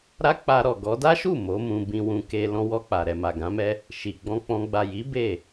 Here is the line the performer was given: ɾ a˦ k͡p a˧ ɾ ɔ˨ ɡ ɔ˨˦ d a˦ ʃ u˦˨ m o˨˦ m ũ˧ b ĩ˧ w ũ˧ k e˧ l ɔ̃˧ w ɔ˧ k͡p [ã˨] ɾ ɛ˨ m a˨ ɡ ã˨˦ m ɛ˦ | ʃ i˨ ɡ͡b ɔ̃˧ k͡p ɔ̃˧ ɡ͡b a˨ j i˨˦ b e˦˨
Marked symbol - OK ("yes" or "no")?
no